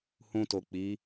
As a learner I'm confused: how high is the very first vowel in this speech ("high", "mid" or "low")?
high